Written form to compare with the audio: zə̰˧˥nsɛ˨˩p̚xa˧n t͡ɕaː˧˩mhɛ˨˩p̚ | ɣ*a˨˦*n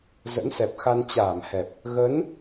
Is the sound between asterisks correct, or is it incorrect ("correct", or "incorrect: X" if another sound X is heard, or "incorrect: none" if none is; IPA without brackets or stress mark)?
incorrect: ə˨˦